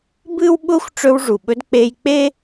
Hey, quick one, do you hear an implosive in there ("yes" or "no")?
yes